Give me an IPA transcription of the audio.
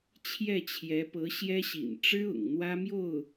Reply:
t͡ɕʰ j ɛ˥˩ t͡ɕʰ j ɛ˧˥ p ɤ˧˥ ɕ j ɛ˥ ɕ ḭ˨˩ n ʈ͡ʂ ɻ̩˥ ʊ̰˨˩ ŋ n̪ w ä˥ m j o˥˩ ʊ̯

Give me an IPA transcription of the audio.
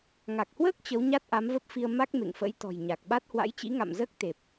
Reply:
ŋ a˨˩ k̚ h w əː˦˥ k̚ t͡ɕ ə˨˦ w ɲ a˦˥ t̚ ʔ a˨˦ m v ə˦˥ p̚ f i˧ ə̯ m a˦˥ k̚ m ḛ˧˨ ŋ f ə̰˧˥ j t̪ ɔ̤˨˩ j ɲ a˨˩ k̚ ɓ a˦˥ t̚ h w a̰˧˥ j t͡ɕ ḭ˧˥ ŋ a̰˧˨ m z əː˦˥ k̚ t̪ e˨˩ p̚

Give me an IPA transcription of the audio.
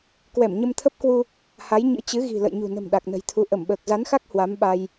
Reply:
k w ɛ˧˩ m ɲ ə˧ m t̪ʰ ə˦˥ p̚ k w u˧ | h a˨˦ j ɲ ɨ̰˧˥ t͡ɕ ɨ˨˦ ɣ i̤˨˩ l ə̰˧˨ j ɲ ṳ˨˩ n ə̤˨˩ m ɗ a˨˩ k̚ n ə̤˨˩ j t̪ʰ u˨˦ ʔ ə˧˩ m ɓ əː˨˩ k̚ z a˨˦ n x a˦˥ k̚ h w a˨˦ m ɓ a˧ j

